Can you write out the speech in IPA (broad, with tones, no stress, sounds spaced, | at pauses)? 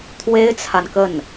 t̪ʰ w e˥ ɪ̯ t͡sʰ a˨ n k ə˥˩ n